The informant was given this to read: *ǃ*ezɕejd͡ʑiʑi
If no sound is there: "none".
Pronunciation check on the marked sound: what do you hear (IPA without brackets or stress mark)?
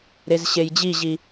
ɾ